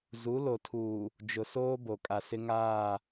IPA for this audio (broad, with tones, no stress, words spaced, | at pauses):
zu˨˦lo˨tʰuː˨ | d͡ʒʊ˨soː˦ bo˨kʼa˨sɪ˦ ŋaː˦˨